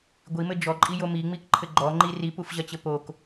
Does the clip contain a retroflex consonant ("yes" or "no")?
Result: no